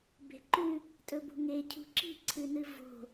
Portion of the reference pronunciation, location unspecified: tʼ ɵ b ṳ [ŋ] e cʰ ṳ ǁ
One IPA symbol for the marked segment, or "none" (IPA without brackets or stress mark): ŋ